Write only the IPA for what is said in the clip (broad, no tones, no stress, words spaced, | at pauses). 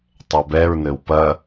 tˤɛbɛɹnɘw pɐ